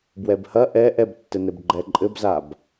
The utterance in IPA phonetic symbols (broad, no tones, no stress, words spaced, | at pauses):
bwɛbhɐ ʔɛ ʔɛbtːɘnɘb ɡ͡ǃɛǃʼɘbzab